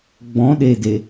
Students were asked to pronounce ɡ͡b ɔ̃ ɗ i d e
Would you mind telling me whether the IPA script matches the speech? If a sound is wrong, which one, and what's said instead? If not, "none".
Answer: i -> e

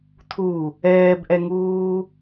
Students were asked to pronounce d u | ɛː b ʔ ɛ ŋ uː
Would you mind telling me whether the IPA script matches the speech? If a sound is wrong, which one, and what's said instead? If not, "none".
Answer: d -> tʰ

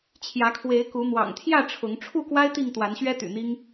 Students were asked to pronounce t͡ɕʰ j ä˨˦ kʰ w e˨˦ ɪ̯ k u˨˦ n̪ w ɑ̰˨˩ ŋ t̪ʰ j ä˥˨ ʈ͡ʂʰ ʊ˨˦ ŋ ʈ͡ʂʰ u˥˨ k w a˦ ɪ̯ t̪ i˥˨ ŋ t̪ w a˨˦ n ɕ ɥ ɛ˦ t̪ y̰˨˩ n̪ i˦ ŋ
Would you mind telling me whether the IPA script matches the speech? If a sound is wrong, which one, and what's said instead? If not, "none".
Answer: none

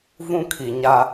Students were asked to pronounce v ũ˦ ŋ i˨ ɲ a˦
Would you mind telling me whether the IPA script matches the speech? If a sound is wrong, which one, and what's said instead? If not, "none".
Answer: ŋ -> kʰ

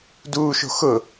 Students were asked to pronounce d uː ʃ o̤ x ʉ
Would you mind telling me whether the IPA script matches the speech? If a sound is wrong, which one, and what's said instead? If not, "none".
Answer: ʉ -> ʊ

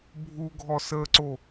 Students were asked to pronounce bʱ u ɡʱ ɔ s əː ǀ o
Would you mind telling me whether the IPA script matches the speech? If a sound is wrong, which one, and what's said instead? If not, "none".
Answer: none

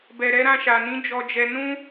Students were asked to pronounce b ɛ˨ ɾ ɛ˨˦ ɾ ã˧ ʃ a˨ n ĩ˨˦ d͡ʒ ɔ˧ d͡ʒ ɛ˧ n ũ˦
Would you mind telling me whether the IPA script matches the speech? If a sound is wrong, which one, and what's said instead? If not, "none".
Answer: none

